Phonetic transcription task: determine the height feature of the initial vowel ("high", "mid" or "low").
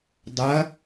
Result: low